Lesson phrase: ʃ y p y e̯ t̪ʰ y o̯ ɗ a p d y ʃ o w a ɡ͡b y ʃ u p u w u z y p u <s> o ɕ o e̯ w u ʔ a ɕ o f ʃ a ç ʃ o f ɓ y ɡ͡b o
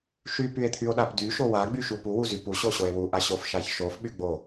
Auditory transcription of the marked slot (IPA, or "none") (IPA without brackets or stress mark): ɕ